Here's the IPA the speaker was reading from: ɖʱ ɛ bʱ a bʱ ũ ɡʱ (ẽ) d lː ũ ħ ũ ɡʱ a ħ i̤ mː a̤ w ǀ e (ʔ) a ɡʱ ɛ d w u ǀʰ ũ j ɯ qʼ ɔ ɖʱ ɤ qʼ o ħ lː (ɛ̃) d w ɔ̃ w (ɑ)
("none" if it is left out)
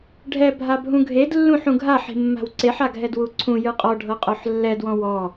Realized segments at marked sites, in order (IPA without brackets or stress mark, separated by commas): e, ħ, ɛ, ɔ